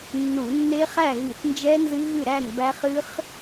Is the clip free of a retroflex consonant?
yes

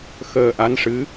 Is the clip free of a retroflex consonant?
no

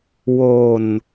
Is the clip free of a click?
yes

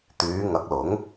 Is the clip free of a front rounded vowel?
no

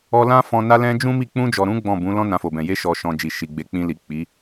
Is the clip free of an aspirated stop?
yes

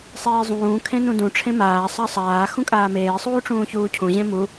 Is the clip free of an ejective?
no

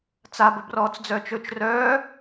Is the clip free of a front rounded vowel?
no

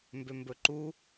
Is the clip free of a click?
no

